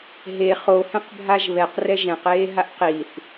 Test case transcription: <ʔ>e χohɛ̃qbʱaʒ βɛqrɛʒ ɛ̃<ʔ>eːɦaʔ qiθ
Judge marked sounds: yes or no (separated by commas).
no, no